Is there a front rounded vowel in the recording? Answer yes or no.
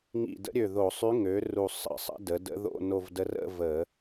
yes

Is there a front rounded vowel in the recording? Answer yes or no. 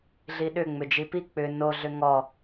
yes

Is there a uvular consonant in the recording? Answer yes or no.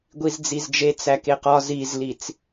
yes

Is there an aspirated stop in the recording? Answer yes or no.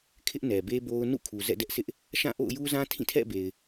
yes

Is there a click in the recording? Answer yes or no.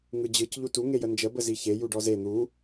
no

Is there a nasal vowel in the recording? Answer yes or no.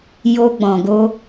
yes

